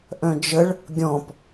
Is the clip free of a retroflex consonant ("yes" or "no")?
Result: no